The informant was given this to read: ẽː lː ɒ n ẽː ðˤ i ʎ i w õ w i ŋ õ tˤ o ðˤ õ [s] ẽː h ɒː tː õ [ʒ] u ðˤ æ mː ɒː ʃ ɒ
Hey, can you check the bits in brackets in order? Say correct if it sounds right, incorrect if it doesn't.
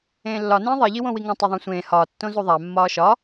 incorrect: sʷ, incorrect: z

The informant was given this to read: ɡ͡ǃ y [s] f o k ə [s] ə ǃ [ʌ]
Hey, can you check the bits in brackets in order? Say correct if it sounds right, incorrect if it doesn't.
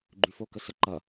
incorrect: none, correct, correct

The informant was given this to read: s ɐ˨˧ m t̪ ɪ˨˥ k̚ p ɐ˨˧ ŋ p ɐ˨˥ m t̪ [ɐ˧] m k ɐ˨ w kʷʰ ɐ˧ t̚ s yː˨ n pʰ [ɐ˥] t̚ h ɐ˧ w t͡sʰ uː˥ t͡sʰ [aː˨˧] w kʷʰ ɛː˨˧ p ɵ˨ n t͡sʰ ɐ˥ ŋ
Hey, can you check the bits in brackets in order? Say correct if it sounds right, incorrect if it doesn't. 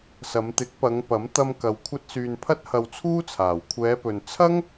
correct, correct, incorrect: aː˨˩

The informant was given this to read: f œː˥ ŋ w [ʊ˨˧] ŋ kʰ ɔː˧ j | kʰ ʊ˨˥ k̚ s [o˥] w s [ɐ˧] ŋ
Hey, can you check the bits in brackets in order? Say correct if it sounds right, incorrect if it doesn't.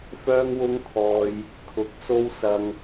incorrect: ʊ˥, correct, correct

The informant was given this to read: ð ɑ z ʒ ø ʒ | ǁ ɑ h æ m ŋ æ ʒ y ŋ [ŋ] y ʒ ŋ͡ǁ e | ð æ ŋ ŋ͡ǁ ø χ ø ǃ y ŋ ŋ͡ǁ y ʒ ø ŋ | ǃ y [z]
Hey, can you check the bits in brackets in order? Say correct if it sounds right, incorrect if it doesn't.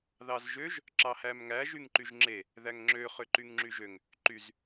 incorrect: ǃ, correct

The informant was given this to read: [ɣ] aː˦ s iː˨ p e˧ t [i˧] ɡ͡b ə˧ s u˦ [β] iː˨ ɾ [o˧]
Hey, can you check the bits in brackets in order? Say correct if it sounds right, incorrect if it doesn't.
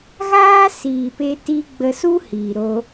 correct, correct, incorrect: h, correct

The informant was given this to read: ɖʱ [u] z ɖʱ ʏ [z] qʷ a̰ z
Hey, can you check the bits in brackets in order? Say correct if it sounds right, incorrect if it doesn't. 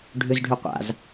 incorrect: ʏ, incorrect: none

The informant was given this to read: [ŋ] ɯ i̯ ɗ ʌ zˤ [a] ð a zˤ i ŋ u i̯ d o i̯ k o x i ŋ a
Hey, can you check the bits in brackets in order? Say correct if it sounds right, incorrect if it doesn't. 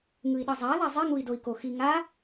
correct, correct

